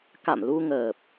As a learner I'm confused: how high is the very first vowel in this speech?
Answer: low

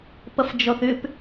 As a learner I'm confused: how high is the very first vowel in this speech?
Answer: mid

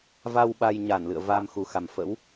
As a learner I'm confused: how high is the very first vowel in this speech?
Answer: low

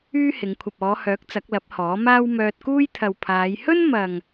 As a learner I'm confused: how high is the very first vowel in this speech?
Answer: high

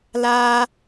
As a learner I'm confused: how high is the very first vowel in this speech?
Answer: low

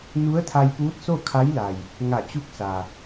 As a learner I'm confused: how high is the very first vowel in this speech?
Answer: high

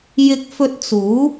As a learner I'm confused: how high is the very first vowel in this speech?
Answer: high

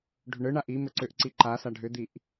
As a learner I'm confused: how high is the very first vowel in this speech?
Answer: high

